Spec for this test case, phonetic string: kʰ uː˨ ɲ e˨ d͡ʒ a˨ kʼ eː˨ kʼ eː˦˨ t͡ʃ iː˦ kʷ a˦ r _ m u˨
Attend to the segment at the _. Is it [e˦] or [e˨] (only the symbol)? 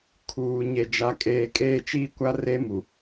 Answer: e˦